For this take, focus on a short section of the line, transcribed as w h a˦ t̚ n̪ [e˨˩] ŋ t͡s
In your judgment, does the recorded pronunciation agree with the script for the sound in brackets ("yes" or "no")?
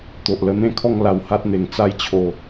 yes